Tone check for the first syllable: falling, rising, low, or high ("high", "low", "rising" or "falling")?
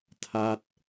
falling